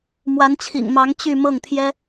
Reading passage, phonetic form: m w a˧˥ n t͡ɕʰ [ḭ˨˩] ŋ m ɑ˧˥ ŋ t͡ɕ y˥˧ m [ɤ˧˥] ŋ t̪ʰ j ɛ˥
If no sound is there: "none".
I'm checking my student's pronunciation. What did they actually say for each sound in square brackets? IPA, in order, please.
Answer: ḭ˨˩, ɤ˥˩

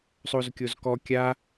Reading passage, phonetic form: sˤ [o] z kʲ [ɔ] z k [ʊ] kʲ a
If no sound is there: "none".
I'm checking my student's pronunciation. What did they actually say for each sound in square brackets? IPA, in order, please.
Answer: o, o, ɔ

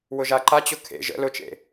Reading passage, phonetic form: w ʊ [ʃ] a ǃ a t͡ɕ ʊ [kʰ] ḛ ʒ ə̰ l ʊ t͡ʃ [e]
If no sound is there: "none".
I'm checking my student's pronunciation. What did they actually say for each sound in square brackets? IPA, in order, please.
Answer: ʒ, kʰ, ḛ

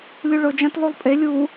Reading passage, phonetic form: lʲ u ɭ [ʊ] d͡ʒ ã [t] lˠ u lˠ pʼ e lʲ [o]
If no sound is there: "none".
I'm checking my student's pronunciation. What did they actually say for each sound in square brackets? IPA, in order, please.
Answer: ʊ, t, u

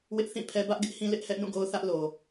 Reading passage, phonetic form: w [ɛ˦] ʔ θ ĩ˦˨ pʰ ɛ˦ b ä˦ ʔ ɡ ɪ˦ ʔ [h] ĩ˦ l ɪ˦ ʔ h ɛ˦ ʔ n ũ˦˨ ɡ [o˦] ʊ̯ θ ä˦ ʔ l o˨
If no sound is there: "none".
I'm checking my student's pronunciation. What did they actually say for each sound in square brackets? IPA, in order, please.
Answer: ɪ˦, h, o˦

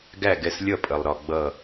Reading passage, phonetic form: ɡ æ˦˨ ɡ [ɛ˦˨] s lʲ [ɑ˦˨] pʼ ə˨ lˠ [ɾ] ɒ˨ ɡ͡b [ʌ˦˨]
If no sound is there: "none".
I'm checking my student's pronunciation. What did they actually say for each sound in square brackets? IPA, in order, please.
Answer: ɛ˦˨, ʌ˦˨, ɾ, ʌ˦˨

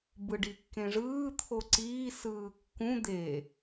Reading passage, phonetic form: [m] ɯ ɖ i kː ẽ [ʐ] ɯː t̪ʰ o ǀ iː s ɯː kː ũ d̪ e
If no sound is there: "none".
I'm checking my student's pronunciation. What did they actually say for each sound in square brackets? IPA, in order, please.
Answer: b, ʐ

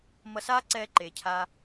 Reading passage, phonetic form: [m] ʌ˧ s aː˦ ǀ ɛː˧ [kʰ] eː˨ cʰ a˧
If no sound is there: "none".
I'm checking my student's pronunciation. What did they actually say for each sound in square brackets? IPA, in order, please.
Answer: m, ǃ

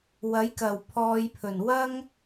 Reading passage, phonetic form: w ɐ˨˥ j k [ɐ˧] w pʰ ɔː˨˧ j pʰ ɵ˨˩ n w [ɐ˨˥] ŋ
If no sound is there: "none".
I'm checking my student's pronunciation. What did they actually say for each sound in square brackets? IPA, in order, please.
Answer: ɐ˨˩, ɐ˥

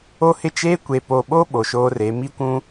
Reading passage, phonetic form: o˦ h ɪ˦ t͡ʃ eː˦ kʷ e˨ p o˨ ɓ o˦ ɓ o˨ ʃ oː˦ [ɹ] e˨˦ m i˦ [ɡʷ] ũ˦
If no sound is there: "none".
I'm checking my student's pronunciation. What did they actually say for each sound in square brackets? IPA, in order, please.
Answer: r, kʷ

